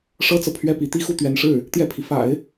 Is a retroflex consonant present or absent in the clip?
present